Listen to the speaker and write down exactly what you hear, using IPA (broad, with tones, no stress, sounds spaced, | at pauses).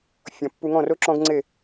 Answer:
fʲ ɔ̃˨ pː u˧ ŋ ɔ̃˦˨ r o˦ ǁ ɔ̃˦ ɡ ŋ͡ǀ e˦˨